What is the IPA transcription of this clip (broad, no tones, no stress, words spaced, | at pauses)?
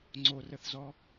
ŋ͡ǀorəθzɔ